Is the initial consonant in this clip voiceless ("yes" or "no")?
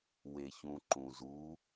no